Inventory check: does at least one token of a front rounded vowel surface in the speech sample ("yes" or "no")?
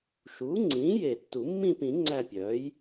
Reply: yes